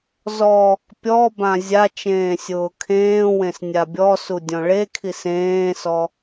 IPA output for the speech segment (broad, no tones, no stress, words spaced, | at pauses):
zɔ | pʲɔbã zʲa t͡ʃẽːsʲʊːkʰẽːwẽs nʲabʲɔsu dʲɔ̃ɭekʰis ẽːsɔ